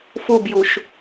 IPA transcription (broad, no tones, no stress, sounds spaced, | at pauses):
f u b j u ʃ